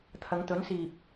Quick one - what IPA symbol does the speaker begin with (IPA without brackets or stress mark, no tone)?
t̪ʰ